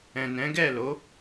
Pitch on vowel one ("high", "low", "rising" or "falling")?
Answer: low